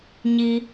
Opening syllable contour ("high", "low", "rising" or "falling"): high